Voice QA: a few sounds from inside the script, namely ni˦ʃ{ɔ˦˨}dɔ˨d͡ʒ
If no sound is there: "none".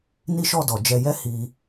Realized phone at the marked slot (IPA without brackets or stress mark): ɔ˦˨